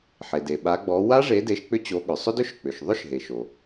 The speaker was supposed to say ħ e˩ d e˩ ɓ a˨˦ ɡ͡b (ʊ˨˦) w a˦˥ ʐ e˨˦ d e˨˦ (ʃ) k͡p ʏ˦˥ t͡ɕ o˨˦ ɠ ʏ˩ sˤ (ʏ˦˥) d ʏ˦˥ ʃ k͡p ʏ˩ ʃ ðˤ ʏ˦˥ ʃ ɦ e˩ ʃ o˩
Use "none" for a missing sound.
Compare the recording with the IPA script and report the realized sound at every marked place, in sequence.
ɔ˨˦, ʃ, ʏ˦˥

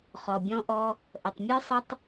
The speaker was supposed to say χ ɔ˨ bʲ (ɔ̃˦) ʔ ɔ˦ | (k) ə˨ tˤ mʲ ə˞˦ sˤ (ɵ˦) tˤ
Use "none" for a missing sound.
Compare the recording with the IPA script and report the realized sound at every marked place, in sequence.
ɔ̃˦, ʔ, ə˦

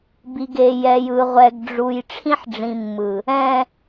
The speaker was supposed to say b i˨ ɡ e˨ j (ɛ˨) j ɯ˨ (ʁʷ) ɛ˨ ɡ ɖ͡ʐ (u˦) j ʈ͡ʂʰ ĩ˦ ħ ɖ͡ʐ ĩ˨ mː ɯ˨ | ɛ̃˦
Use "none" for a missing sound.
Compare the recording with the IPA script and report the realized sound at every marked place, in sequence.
ɛ˨, ʁʷ, u˨

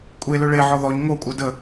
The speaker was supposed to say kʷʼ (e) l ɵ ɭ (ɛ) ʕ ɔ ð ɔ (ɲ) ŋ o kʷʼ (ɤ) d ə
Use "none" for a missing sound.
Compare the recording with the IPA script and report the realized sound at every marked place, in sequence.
e, e, ɲ, ɤ

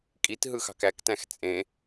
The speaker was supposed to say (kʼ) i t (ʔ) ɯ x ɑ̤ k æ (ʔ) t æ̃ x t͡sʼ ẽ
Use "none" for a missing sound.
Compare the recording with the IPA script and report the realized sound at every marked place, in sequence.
kʼ, ɦ, k

